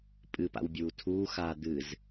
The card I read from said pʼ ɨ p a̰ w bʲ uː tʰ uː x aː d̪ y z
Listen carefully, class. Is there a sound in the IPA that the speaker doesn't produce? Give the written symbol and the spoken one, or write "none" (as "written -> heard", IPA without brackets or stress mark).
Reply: y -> ɨ